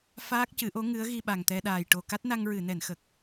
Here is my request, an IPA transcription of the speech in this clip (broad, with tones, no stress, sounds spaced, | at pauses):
f aː˦˥ k̚ c ɨ˨˩˦ ʔ o˧˥ ŋ ɨ˧˥ ə̯ ɣ i˧ ɓ a˨˩ ŋ t̪ ɛ˧ ɗ aː˨˩ j ʈ o˨˩ k a˦˥ t̚ n a˧ ŋ ɹ ɨ˨˩˨ n ɛ˨˩˨ n x ə˨˩ k̚